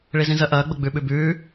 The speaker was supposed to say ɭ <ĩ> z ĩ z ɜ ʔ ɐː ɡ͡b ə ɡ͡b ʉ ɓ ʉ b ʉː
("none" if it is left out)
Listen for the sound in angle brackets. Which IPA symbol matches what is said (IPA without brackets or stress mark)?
i